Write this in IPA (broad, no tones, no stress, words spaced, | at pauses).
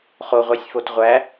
χoʁʷæsʲfot ʁʷæ